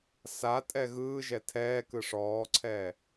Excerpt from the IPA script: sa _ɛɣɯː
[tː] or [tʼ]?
tʼ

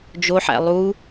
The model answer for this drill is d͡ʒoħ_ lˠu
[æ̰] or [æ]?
æ̰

